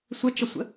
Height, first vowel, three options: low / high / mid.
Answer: mid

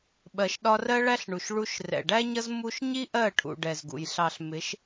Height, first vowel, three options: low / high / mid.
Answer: mid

